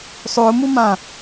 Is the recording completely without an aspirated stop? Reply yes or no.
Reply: yes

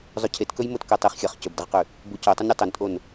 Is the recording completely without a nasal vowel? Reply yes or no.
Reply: yes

